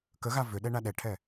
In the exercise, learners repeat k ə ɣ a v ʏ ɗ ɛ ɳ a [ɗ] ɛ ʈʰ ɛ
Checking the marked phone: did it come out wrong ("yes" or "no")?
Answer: no